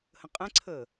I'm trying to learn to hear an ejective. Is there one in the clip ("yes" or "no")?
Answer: yes